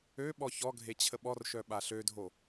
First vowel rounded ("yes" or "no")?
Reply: yes